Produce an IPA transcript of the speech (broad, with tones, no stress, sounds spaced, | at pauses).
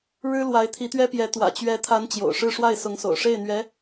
ɻ ɻ̩˥ l w a˧˥ ɪ̯ t̪ʰ i˧˥ t̪ ɥ ɛ˥ p j ɛ˧˥ t̪ w ä̰˨˩ t͡ɕ ɥ ɛ˧˥ t̪ʰ a˧˥ n t͡ɕ j o̰˨˩ ʊ̯ ʂ ɻ̩˥˧ ʂ w a˥˩ ɪ̯ s ʊ˧˥ ŋ s o̰˨˩ ʊ̯ ʂ e˥˩ ɪ̯ n̪ ɥ ɛ˧˥